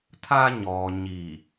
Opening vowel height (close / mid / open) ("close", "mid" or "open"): open